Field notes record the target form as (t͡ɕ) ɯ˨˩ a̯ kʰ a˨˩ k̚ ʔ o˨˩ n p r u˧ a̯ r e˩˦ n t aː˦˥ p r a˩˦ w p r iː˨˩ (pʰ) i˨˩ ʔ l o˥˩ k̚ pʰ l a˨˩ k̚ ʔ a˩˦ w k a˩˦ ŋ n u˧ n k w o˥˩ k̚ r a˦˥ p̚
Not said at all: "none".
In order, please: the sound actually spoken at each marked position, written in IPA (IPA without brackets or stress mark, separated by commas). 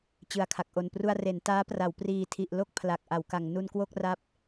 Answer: t͡ɕ, tʰ